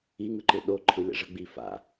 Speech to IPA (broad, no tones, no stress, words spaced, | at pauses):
iŋɯǃɯ ɗo ǃʰɯlʲa̰ʐʌɡ͡bi fa̰